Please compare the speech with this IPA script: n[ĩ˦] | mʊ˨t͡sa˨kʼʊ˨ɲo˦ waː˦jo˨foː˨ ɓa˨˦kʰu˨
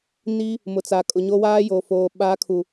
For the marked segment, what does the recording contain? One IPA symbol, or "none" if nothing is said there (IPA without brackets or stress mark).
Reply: i˦